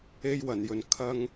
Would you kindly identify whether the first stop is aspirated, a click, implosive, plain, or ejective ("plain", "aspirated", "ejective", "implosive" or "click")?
aspirated